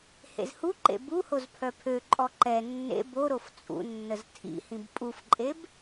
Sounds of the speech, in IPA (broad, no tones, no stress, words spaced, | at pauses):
hḛzhuǃḛ buhoz pʰœpʰøǃʼɔ ǃɛ nːḛ boɾof t͡sʼṵnːəz tʰḭhĩb pʼufǃʼeb